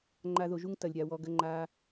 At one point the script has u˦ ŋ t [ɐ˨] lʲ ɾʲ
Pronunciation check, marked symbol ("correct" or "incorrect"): correct